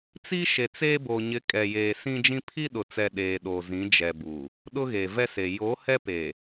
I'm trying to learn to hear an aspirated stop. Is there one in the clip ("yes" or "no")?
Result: yes